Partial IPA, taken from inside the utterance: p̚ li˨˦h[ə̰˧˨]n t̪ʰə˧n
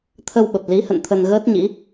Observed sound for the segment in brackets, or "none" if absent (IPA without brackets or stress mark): ə̰˧˨